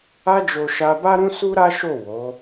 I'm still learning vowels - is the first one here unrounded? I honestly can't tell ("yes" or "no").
yes